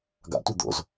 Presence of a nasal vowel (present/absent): absent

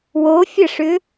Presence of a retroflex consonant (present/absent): present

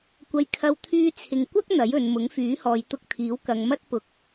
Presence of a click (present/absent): absent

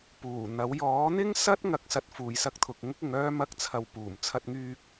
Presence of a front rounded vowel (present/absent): present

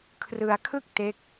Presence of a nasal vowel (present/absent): absent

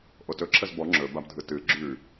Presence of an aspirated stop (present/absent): present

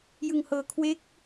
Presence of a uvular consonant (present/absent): absent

